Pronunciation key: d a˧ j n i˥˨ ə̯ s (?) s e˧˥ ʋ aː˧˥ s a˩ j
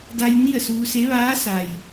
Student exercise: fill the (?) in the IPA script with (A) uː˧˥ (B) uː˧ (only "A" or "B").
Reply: B